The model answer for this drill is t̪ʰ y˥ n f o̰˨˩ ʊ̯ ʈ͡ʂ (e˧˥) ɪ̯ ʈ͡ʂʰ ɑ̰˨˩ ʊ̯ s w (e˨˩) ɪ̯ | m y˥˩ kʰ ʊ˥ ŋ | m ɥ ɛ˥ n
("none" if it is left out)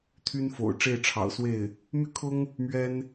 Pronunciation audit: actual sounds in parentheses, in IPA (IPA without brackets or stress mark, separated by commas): e˥˩, e˥˩